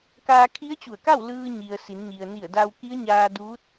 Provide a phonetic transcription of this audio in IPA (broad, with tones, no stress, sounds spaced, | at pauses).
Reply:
k aː˧ kʰ i˧˥ ə̯ t͡ɕ u˧˩ ə̯ k a˥˨ w l ɯː˧ ɲ i˩ ə̯ s i˩˧ n ɲ i˩ ə̯ n i˧˩ ə̯ d a˧ w k i˧˥ ə̯ ɲ aː˧ d uː˧˥ t̚